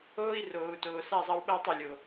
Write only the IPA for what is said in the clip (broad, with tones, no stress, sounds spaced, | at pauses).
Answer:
oː˦ i̯ r oː˨ u̯ t oː˨ s a˦˨ zˤ ɐ˦ w ɓ ɐː˦ tˤ o˨ lʲ o˨